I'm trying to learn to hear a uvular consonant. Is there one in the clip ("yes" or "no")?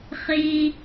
yes